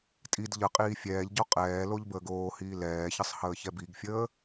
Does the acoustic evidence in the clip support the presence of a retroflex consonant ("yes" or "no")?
no